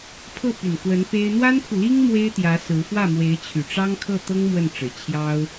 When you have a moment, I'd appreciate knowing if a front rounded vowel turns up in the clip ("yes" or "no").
yes